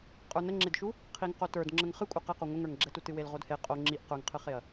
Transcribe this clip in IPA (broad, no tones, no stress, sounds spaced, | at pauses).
qʼ ə˞ n ə ŋ͡ǁ e d ʃ u | qʰ i ŋ q o t ə˞ d ŋ͡ǁ ə ŋ χ ɨ kʷʼ ə q ɛ q o ŋʷ ə ŋ ə˞ ŋ ɡ͡ǁ ɛ t u t ɨ w e l ʁ o d h e qʼ o ŋ͡ǁ i ʔ q ə˞ ŋ qʰ ɨ χ e ɐ̯